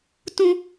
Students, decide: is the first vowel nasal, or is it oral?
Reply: nasal